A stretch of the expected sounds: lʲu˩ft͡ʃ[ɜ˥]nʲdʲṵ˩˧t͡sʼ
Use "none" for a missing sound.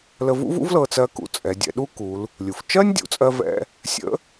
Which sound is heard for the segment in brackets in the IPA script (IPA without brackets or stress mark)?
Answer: ɜ˥